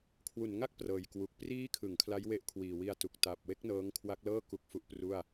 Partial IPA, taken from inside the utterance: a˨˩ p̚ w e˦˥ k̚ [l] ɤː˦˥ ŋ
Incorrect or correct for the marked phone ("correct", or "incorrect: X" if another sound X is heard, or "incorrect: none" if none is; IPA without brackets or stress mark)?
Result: incorrect: n